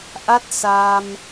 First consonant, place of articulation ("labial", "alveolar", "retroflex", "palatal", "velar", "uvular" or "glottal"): glottal